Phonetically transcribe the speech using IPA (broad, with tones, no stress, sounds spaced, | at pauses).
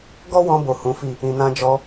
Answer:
ɡ ɔ˦ w ɔ̃˧ b o˨ h ũ˨˦ f i˦˨ | ĩ˨ n ã˧ d͡ʒ ɔ˧